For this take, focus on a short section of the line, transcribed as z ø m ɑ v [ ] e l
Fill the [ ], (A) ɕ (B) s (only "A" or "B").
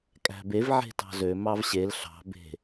A